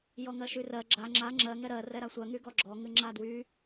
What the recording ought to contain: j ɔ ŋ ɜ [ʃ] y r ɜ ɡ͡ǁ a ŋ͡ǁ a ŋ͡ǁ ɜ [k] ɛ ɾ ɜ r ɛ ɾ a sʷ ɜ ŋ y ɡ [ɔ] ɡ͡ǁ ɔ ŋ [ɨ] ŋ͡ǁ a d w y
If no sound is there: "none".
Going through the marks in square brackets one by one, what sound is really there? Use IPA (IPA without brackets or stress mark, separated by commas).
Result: ʃ, ŋ, ɔ, ɨ